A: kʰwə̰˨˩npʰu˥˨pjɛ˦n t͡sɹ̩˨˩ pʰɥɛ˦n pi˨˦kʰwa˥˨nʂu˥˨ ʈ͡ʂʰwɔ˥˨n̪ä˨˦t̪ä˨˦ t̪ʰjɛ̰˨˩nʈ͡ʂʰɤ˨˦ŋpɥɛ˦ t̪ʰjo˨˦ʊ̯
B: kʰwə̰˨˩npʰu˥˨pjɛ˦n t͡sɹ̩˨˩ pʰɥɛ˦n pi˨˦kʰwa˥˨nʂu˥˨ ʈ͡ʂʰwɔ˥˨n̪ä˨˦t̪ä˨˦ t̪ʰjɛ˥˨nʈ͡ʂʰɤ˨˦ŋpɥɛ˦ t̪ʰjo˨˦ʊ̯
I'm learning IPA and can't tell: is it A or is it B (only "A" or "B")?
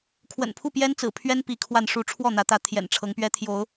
A